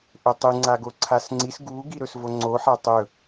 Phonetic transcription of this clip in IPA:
ʔɵtˤɨ ŋ͡ǀaɡoǀʰasŋ͡ǀis ɡu ɡiɾɵsvoŋ͡ǀo ħatˤɵ

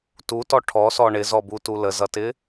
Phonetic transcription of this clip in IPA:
tutɔ ʈʰɔsɔ ɳɪzɔbutu ləzʌtɪ

